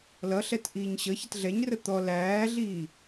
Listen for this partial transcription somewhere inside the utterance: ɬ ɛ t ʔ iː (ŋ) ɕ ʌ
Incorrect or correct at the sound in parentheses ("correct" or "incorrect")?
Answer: incorrect